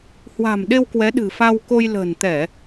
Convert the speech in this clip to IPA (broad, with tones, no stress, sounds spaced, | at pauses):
h w a̤˨˩ m ɗ e˧ w k w ɛ˨˦ ɗ ɨ̤˨˩ f a˧ w k o˧ j l ə̤ː˨˩ n t̪ ɛ˧˩˨